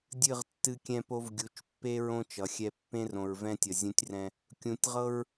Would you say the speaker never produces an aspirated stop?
yes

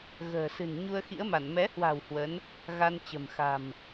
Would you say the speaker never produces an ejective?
yes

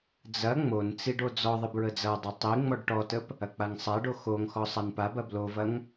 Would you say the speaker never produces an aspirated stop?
yes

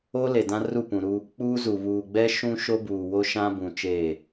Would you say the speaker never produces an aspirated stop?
yes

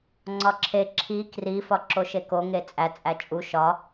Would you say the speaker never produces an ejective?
no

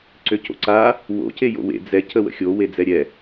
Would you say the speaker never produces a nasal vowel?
yes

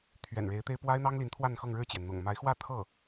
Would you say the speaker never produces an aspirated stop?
no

